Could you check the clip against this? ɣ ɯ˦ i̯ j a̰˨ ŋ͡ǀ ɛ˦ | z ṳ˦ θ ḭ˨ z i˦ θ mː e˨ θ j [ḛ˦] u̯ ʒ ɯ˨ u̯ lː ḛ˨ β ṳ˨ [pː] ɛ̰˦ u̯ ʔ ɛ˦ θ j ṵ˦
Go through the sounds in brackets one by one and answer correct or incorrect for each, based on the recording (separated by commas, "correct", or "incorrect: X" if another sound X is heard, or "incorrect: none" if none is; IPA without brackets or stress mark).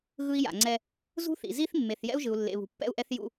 incorrect: ɛ̰˦, correct